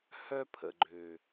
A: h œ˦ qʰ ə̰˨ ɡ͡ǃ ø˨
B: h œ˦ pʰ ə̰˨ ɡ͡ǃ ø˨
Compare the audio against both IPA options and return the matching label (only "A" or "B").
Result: B